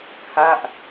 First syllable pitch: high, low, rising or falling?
falling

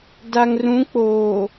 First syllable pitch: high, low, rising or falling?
low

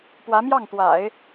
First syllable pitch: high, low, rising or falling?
rising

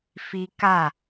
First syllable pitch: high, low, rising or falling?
high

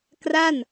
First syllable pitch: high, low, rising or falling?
falling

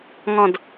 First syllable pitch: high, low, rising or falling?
falling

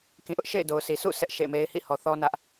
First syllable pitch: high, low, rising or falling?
low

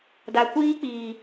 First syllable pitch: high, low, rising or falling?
low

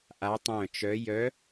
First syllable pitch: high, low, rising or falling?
rising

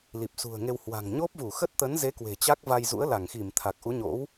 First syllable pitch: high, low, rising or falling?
low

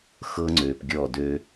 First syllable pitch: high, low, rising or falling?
high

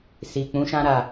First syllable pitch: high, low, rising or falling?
low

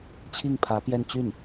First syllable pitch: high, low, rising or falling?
falling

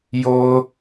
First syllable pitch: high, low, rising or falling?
high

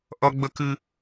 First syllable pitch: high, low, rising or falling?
high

